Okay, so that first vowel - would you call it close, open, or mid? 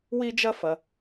close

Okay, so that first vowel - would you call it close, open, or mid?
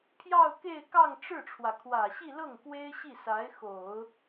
open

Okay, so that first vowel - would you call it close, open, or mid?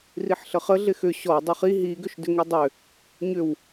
close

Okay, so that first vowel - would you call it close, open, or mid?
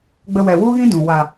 mid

